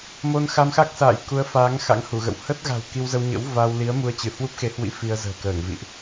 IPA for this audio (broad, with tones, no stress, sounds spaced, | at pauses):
m o˧ n x a˧ m x a˦˥ k̚ s a̰ː˧˨ j k u˨˦ ə̯ f aː˨˦ ŋ x a̰˧˥ ŋ h u˧˩ ɣ ə̰˧˨ w h ə˦˥ t̚ ɣ a̤˨˩ w k i˧ w z ə˧ w ɲ ə̰˧˥ w v a˧ w l i˨˦ ə̯ m u˧ ə̯ t͡ɕ ɨ˧˩ h w u˦˥ p̚ x e˨˦ h w ḭ˧˥ f i˧ ə̯ z ə̤ː˨˩ k əː˧˩ ŋ v ḭ˧˨ ʔ